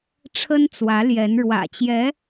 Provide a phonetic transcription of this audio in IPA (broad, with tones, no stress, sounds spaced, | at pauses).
ʈ͡ʂʰ ə˥ n t͡s w ä˧˥ l j ɛ˧˥ n ɻ w ä̰˨˩ t͡ɕ j ɛ˧˥